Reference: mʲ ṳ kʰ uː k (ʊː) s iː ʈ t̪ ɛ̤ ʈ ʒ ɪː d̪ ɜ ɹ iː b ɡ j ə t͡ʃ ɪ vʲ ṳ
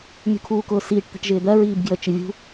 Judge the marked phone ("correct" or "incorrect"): correct